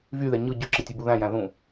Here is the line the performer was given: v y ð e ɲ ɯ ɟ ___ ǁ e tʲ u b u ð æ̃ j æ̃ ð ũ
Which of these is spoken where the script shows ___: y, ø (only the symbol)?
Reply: ø